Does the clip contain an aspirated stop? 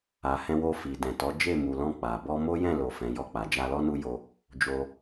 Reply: no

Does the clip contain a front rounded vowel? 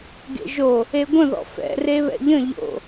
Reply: no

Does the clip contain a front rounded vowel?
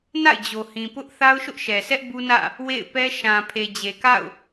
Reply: no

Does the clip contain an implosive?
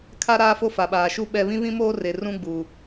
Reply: yes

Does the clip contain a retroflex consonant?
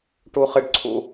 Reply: yes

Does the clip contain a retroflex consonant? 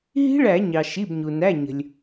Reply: yes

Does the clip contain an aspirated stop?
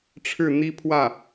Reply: yes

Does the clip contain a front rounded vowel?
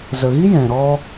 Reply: no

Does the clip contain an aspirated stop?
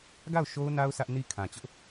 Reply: yes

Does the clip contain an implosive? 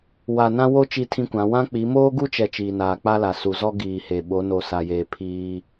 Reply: yes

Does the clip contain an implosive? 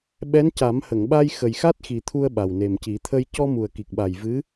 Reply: yes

